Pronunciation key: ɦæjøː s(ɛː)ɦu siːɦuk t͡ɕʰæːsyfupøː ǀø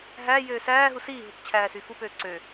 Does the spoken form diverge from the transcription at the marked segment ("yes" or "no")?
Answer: yes